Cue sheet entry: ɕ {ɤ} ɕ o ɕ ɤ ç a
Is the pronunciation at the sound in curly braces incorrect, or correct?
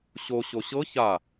incorrect